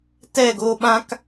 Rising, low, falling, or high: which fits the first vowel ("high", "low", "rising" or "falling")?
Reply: falling